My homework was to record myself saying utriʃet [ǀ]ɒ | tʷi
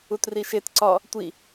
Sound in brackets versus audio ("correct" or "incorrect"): correct